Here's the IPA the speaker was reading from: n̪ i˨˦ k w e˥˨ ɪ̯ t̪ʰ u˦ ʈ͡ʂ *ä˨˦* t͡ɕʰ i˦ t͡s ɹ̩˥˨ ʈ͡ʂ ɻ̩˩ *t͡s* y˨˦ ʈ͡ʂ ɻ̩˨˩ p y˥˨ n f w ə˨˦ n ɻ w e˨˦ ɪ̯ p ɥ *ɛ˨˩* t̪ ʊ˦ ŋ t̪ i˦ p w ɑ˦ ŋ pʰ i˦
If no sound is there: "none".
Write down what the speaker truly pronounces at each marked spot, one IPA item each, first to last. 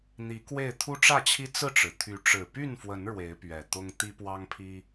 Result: ä˥˨, t̪ʰ, ɛ˨˩

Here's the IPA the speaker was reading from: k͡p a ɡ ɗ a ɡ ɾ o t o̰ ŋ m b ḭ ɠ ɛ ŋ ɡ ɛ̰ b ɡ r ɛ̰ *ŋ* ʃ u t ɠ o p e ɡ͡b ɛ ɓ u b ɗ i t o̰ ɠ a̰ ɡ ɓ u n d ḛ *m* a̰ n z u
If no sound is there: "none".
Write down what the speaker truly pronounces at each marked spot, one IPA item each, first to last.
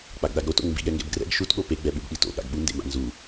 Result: ɡ, m

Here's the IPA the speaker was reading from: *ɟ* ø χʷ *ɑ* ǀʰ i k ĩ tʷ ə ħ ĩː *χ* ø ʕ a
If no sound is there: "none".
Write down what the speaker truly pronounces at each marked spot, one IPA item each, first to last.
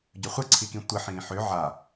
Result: ɟ, ə, ħ

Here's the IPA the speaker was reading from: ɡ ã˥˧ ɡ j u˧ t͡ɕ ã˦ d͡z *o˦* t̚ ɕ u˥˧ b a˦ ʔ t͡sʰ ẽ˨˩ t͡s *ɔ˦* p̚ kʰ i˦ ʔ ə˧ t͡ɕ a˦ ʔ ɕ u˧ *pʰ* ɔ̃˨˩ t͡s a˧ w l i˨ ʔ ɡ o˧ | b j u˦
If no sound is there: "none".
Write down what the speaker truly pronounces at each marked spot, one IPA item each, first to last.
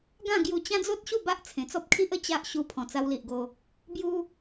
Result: o˦, ɔ˦, pʰ

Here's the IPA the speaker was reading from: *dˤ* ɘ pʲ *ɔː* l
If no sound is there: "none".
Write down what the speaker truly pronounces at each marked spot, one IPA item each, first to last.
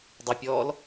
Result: dˤ, ɔː

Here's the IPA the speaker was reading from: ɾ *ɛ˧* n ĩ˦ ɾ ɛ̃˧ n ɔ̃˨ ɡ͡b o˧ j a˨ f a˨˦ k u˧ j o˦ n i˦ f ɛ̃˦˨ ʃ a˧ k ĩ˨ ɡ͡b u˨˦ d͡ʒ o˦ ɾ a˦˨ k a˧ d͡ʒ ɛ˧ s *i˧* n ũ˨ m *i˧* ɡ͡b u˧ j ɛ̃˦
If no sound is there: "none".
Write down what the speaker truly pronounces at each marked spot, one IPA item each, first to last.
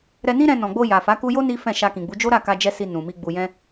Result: ɛ˧, i˧, i˧

